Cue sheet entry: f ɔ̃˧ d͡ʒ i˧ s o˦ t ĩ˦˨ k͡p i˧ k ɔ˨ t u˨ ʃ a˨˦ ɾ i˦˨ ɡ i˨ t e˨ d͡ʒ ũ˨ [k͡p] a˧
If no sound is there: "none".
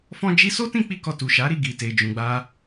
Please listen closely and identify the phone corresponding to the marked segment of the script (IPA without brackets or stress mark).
ɡ͡b